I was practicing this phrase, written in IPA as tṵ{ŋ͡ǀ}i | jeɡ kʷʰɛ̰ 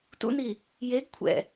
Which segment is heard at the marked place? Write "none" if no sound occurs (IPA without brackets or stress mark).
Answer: n